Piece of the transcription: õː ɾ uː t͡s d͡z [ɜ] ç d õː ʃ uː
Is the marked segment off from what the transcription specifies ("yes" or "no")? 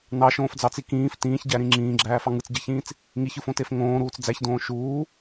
yes